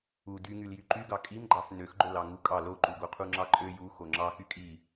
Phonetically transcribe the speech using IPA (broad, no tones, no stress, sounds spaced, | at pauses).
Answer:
u d y ŋ y l j y ǃ y ɡ ɑ kʼ i m ɡ͡ǃ ɑ f n ø x ɡ͡ǃ o l ɑ ŋ u kʼ ɑ l o ǃ u ɡ o qʰ u ŋ͡ǁ ɑ ǃʼ ø j u x o ŋ͡ǁ ɑ x y kʼ i